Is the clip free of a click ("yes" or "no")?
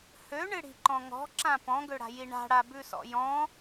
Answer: no